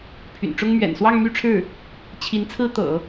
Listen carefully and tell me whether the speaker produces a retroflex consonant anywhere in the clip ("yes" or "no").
yes